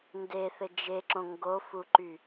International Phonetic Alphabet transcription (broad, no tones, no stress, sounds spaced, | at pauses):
n d e θ ɘ d͡ʒ e ǁ õ ŋ ɡ o f u ǃ y